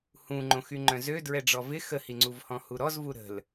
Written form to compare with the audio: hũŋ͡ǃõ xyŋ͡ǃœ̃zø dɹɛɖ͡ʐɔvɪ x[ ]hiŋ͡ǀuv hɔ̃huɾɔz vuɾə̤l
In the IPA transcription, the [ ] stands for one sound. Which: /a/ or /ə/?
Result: ə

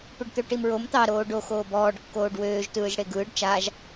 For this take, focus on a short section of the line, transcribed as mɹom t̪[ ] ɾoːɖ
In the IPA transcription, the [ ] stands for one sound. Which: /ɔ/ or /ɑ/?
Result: ɑ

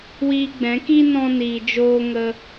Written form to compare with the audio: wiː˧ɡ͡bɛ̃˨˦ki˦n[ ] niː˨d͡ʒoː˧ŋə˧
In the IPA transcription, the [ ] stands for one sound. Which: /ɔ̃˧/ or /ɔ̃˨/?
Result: ɔ̃˧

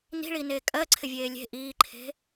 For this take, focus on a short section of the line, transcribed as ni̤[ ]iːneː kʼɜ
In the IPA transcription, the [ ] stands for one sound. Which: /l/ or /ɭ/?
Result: ɭ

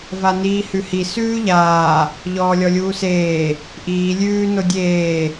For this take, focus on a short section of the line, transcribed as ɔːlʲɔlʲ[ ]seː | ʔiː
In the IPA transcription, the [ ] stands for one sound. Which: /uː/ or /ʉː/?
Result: uː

